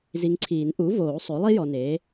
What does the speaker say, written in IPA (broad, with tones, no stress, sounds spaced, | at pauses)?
z i˨ ŋ ǀʰ iː˨˩˦ n ʔ u˩˥ v oː˨˩˦ sˤ o˩˥ lˠ i˥ j ɔ˨ n eː˩˥